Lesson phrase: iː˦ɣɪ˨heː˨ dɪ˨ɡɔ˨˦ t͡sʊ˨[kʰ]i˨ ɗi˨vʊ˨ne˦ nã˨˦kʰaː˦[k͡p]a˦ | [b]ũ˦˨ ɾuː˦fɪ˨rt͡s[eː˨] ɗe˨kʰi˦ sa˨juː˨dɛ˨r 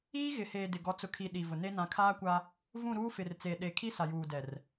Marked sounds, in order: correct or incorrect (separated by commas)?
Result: correct, incorrect, incorrect, correct